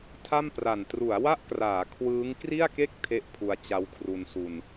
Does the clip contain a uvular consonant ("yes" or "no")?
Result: no